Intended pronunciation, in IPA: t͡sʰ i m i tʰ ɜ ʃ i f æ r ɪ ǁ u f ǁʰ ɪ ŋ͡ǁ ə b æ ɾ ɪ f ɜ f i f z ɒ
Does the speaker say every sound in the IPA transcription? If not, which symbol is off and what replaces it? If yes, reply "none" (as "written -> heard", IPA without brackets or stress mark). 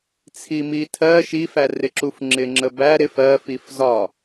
ǁʰ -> ŋ͡ǁ